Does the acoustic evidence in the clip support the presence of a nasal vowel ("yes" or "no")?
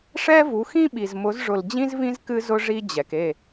yes